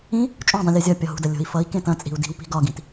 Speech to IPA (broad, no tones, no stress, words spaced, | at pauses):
ĩ | t͡ʃʼũ dˤũlʲɤzʲɒpʲɒ ɦṳdɐ lʲo̤i̯fʌi̯kẽ tɐ̃t͡sʼi̤u̯ di̤wpi̤ ɡɒɡĩt